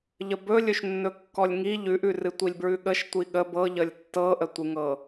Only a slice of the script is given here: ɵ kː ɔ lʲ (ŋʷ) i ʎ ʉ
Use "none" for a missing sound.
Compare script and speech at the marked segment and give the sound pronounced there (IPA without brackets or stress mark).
ŋ